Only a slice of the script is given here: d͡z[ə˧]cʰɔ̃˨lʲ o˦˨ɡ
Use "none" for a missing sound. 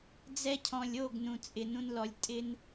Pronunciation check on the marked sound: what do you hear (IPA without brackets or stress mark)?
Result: ɛ˧